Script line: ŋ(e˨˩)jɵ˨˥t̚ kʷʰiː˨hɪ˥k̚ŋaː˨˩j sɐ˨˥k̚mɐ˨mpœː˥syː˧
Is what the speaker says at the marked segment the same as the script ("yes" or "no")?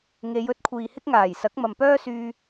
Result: no